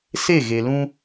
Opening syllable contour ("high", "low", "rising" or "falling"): falling